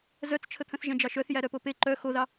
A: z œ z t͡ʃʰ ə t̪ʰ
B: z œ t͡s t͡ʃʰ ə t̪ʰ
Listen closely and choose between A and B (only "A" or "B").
B